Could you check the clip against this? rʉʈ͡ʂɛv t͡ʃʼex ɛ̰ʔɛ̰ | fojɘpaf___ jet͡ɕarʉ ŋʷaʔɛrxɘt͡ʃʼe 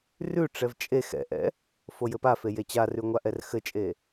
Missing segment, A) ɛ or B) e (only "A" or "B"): B